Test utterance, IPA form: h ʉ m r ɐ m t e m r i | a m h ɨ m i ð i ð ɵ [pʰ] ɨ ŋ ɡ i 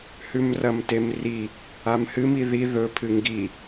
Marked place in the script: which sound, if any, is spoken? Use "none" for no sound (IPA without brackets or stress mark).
pʰ